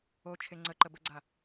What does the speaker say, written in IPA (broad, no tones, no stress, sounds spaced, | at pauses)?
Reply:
o t͡ʃʰ e ŋ͡ǀ ə ǃ ə b ə ɡ͡ǀ a